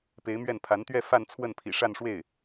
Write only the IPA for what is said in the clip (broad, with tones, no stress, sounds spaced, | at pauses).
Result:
p e˧˥ ɪ̯ m ɥ ɛ˥˩ n pʰ a˧˥ n t̪ ɥ ɛ˥˧ f a˥˧ n t͡sʰ w ə˥˩ n pʰ ḭ˨˩ ʂ a˥˧ n ʂ w e˥˩ ɪ̯